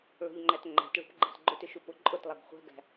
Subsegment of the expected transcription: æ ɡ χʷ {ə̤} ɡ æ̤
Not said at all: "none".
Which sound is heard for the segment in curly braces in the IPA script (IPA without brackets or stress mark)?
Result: æ̤